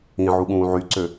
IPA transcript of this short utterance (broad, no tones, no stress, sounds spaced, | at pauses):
ĩ ʕ u ɠ ũː ʕ y ǀ ø